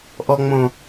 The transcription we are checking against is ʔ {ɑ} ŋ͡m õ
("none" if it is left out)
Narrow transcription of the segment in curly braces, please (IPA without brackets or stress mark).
ɔ